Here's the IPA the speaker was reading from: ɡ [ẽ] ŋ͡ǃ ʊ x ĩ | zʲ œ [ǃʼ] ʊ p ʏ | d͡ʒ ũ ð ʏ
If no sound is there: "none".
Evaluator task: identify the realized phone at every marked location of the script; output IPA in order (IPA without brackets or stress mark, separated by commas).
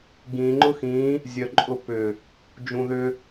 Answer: ĩ, ǃʼ